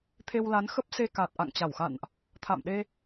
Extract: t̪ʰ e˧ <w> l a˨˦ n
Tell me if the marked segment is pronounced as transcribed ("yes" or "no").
yes